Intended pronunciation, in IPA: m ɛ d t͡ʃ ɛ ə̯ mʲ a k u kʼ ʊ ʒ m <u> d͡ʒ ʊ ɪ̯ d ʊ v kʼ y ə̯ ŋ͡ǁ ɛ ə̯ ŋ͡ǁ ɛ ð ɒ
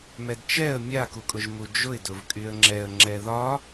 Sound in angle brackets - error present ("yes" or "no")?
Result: no